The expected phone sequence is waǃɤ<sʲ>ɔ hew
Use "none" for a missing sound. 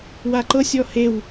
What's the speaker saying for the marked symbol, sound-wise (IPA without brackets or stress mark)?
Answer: sʲ